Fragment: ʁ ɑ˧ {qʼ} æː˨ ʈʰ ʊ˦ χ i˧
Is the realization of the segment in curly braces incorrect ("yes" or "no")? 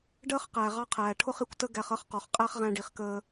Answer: yes